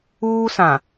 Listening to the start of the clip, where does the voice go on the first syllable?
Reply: high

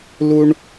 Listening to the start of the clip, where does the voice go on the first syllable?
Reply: high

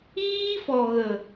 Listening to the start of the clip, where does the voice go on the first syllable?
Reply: high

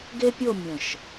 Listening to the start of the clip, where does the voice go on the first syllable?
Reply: high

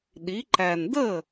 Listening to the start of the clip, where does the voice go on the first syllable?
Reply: rising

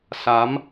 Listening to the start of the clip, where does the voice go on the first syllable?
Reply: rising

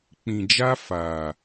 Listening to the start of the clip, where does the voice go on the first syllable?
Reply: low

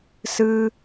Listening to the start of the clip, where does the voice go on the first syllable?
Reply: high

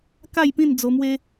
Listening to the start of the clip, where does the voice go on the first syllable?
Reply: falling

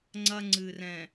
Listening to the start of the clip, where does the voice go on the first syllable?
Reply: high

